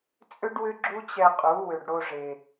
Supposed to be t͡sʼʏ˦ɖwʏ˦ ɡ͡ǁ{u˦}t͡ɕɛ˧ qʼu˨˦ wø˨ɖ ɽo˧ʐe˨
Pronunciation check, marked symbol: correct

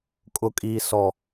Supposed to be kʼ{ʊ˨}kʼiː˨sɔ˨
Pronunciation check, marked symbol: correct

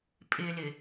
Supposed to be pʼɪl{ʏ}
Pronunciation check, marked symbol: incorrect: ɪ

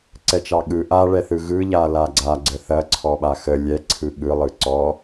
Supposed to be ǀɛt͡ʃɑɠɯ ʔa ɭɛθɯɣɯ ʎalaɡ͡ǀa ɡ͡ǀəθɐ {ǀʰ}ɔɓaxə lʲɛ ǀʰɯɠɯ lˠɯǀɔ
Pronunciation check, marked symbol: correct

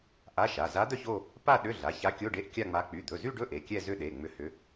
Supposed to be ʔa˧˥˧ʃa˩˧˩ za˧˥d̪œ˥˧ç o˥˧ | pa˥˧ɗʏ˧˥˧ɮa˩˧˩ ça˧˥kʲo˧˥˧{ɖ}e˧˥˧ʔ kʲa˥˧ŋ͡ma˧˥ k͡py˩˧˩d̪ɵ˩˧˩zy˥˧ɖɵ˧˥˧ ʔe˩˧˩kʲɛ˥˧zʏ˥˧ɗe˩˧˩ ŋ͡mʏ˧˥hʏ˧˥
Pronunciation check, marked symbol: correct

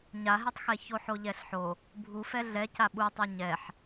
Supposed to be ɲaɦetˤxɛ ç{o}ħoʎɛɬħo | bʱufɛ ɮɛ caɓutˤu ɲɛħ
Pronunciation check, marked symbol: correct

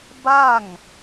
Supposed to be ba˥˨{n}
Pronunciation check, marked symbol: incorrect: ŋ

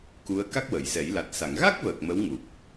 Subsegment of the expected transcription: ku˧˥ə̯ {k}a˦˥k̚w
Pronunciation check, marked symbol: correct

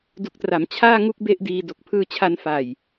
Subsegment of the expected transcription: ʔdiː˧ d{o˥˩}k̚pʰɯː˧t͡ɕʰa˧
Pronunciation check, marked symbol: incorrect: o˨˩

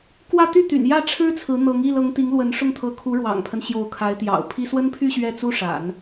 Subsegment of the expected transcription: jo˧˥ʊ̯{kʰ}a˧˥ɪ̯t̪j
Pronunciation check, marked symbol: correct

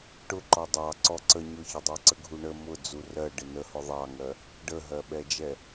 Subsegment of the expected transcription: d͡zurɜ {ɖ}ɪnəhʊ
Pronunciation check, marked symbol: correct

